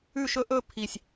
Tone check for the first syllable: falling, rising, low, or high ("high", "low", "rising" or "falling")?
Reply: falling